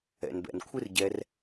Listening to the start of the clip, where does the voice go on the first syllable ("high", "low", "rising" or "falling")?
low